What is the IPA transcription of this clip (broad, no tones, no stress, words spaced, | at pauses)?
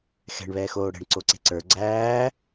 xɛ̤ɳβɛːxoː ɽɛ̤ɳǀoǀe̤ ǀə˞ ɡ͡ǀæː